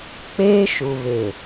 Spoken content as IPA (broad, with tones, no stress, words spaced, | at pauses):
k͡peː˦ʃu˨βe˨